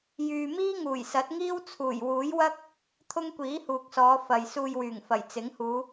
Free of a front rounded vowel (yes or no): no